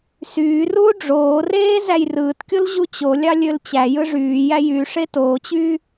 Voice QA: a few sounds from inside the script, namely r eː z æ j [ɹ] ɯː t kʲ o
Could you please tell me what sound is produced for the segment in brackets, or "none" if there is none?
r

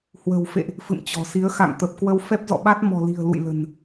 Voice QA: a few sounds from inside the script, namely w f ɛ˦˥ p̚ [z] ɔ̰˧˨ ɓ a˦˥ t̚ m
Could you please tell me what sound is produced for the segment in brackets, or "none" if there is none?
z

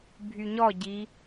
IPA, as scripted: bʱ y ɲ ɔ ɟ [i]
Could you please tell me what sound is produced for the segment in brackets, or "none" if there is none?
i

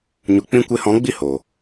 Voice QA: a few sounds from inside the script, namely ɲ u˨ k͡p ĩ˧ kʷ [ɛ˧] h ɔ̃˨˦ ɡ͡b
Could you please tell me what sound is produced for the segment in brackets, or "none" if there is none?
e˧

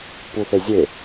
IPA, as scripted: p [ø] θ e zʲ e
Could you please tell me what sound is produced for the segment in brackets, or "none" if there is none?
u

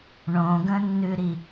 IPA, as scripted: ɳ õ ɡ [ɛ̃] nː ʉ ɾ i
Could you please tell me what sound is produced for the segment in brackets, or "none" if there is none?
ə̃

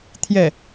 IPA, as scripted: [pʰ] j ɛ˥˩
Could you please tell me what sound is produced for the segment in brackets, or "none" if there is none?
t̪ʰ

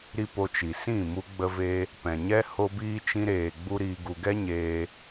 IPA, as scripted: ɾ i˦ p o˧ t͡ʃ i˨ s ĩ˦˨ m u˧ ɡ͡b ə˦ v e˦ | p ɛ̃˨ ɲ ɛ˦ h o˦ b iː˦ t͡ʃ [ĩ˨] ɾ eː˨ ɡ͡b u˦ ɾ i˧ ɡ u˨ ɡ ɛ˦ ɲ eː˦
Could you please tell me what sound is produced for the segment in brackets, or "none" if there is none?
ĩ˦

